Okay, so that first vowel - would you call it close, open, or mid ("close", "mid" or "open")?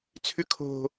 close